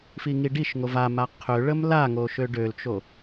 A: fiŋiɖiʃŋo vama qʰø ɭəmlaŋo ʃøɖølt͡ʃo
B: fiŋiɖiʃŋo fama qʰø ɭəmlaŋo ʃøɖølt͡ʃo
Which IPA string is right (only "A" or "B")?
A